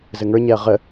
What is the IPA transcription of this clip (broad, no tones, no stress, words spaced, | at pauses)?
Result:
zɘŋə˞ɲɛɐ̯ ʁə